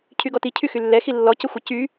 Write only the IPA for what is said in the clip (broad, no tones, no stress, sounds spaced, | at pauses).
cʰ y ɡ ɔ t i cʰ y x y lː ɛ x i lː ɔ c ə xʷ ə c y